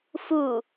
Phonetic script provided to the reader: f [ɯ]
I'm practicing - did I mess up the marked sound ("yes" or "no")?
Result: yes